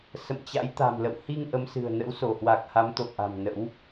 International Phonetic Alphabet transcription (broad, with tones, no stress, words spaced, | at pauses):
sə̰˧˨mt͡ɕa̰˧˥j t̪a̤˨˩mlə̰˧˨w hi˧ŋ ʔə˨˦msɨ̤˨˩ə̯ nə̰˧˥wso˧˩hwa˨˩k̚ha˨˦m t̪o̰˧˨w ʔa̤˨˩m nə̰˧˥w